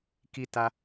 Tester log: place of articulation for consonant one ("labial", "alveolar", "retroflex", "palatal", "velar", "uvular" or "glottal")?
velar